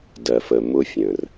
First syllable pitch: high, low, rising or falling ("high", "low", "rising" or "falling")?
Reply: low